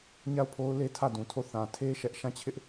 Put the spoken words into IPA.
ɲa˦˨ʊ̯pʰo˦ʊ̯le˦ tʰä˦˨dũ˨tʰo˦˨ θã˨tʰe˦ ʃɛ˦ʔ ʃã˦˨t͡ɕʰɪ˦ʔ

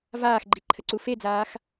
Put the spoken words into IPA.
vaːxɡ͡ǃiǃʰəǀu fed͡zaːx

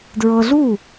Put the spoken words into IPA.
dɹɤ˧ɮu˥˩

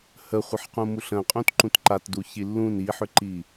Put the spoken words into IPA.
həχʷəħqũmuɬ ə̃qʼũt ǃũtǃatdu çilːũn iħʏǃi

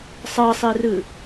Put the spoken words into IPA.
sˤɤsˤirɯ

